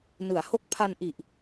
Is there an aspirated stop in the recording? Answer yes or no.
yes